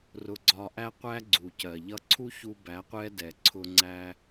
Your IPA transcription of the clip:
r ʊ˧ ɡ͡ǀ ɒ˧ ʔ æ˦ qʷ æ˦ ɡ͡ǀ u˨ c ɜ˨ ʎ ʌ˧ ǀʰ u˦ ç u˧ b æ˨˦ qʷ ɛ˦ d ɛ˨ ǀʰ ʊ˧ ŋ͡ǀ æ˦

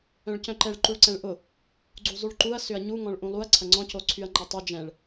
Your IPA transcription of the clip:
œ̃ ɭ c œ̃ ǃ ɛ ɭ ǃ u ɭ ǀ ɛ̃ ɭ ʔ ʊ | ɡ͡ǀ u zˤ y ɭ ǃ u ɐ̯ s ʏ ɐ̯ ɲ u ŋ ɔ̃ ɭ ʔ ũ lˠ u ɐ̯ ǀʰ ɐ ŋ͡ǀ ɔ̃ c o ǀʰ y ɐ̯ ŋ͡ǃ ɛ tˤ y d͡ʒ ɛ̃ ɭ

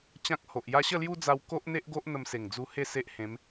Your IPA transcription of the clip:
t͡ɕ ã˦ k̚ h o˨ ʔ j a˦ ɕ ə˥˧ l j u˦ d͡z a˧ w k o˦ ʔ n̪ e˦ ʔ ɡ o˦ ʔ n̪ ə˧ m s e˨˩ ŋ d͡z u˧ h e˥˧ s e˦ ʔ h ẽ˨˦ m

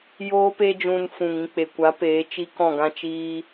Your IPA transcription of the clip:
j oː˦ p e˦ d͡ʒ ũ˧ n f ũ˨ ŋ ĩ˧ k͡p e˨ kʷ a˨˦ p eː˨˦ t͡ʃ i˦ k ɔ̃˦˨ ɡ ã˦ t͡ʃ iː˦

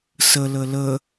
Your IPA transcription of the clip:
s ə l ə l ə

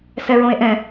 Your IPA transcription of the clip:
s ɛ ɹ õ e̯ ʔ ɛ̃

